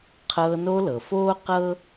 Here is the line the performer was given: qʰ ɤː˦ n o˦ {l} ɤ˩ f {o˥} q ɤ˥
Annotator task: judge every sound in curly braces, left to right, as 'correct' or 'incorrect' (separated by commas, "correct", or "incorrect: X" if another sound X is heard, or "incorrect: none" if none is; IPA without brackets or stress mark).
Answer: correct, incorrect: oː˥